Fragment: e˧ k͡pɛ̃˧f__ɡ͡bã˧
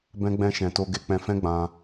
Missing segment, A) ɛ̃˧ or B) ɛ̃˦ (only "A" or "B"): B